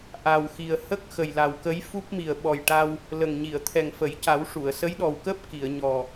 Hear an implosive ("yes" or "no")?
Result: yes